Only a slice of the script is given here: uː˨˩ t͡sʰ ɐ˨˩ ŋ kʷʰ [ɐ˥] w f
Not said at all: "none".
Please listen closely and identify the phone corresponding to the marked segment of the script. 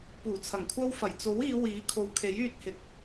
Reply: ɐ˥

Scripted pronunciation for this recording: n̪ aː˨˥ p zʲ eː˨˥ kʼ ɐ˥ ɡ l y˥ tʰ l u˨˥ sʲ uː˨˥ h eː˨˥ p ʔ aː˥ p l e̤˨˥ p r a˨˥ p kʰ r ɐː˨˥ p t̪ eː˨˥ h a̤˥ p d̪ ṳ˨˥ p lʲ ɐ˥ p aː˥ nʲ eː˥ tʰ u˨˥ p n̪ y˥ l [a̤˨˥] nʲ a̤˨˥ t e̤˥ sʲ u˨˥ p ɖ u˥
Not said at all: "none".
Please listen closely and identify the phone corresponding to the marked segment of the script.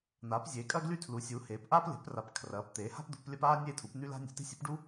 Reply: a̤˥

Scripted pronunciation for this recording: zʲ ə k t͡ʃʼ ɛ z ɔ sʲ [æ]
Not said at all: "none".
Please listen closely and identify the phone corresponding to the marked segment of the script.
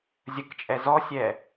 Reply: ɛ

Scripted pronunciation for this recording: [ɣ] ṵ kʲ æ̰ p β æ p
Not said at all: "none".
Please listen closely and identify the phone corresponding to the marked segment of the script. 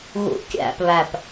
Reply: ɣ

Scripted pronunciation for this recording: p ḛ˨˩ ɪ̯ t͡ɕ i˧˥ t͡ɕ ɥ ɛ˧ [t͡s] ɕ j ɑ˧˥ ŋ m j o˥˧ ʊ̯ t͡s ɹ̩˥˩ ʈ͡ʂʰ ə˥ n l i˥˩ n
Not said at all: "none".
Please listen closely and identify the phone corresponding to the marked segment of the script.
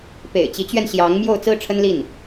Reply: n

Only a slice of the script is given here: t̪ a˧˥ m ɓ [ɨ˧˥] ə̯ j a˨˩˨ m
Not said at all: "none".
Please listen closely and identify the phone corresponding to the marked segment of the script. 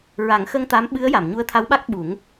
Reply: ɨ˧˥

